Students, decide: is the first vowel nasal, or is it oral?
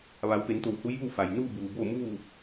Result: oral